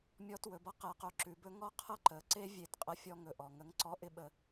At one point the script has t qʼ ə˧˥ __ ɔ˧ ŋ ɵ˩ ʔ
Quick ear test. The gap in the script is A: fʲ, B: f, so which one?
A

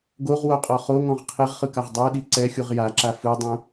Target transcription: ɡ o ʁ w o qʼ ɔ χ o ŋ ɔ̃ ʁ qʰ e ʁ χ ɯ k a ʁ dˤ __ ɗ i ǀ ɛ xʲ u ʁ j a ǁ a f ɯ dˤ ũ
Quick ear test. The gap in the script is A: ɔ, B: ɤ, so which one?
B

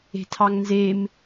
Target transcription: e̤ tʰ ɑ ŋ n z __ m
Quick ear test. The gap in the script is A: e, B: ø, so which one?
A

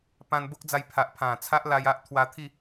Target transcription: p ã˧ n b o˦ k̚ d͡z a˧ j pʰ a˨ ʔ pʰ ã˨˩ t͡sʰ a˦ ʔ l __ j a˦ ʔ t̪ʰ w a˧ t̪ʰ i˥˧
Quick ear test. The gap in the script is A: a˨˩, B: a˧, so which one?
B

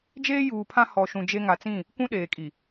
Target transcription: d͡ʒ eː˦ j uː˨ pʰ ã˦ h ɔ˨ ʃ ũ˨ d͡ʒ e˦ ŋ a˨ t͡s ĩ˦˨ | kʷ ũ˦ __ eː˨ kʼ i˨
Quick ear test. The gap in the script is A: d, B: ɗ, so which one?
B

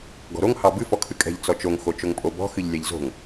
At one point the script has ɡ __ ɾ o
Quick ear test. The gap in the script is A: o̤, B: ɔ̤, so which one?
B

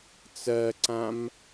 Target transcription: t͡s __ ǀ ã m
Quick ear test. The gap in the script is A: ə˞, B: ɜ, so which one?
B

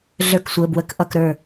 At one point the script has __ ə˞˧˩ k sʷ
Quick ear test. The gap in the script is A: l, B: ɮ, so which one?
B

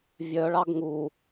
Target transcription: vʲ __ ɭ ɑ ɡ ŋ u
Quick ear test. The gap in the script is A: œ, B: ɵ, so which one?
A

